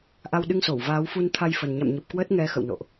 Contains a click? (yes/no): no